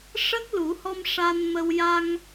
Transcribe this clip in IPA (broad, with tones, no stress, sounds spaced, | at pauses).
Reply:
ʂ ə˦˥ k̚ l u˨˩˦ h ɔ˧ m ʂ a˧ n m ə˧ w j a˧ ŋ